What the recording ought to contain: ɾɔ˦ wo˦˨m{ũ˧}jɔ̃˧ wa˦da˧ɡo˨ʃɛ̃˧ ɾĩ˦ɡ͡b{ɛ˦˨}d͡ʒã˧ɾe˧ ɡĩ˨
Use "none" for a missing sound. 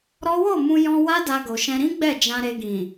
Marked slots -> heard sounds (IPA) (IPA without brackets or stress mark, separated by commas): ũ˧, ɛ˦˨